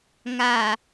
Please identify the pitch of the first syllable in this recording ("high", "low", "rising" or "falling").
low